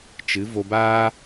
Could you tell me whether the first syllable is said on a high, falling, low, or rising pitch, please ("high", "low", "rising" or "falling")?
rising